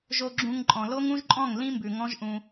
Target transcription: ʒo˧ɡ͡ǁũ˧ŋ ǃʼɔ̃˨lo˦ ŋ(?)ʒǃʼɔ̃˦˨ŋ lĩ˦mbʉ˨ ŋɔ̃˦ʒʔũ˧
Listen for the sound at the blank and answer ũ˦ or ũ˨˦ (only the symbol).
ũ˦